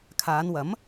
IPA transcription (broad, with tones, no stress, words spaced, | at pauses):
kʰaː˨˧nwɐ˨˥m